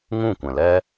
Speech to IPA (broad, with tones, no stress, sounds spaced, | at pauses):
ŋ ũ˦˨ kʷ ɛ̃˨ l ɛ˦